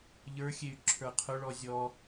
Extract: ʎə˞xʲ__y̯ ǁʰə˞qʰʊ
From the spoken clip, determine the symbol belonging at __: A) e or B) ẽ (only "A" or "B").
A